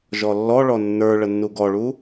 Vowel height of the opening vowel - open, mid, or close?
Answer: mid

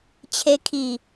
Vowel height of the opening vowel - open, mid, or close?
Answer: mid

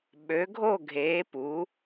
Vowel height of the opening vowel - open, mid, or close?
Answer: mid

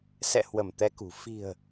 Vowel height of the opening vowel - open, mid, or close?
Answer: mid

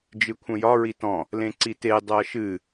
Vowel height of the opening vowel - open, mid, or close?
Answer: close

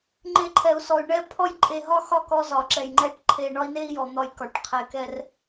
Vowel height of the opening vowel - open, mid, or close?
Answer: mid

